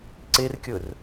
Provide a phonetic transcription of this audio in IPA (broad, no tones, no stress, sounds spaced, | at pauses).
ǀ e r kʲ ɵ r